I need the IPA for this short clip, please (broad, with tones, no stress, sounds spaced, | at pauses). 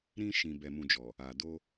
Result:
ɾ ĩ˧ ʃ ĩ˨ b ɛ˨ m ũ˨ d͡ʒ ɔ˨ | a˨ d o˧